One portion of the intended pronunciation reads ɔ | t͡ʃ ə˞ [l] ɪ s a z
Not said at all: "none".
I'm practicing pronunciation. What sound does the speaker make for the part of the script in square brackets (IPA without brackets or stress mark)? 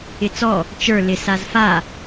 l